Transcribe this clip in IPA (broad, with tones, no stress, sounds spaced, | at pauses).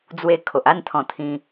d͡z w e˧ kʰ o˨ ʔ a˥˧ n t̪ʰ ɔ̃˧ t̪ʰ ĩ˧